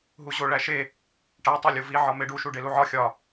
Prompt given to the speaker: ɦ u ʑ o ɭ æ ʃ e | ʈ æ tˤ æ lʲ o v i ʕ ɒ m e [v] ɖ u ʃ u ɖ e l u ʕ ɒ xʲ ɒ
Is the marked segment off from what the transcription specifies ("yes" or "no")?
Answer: yes